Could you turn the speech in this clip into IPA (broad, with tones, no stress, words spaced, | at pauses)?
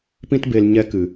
pĩ˦tbe˧l ɲɛ˧kɨ˨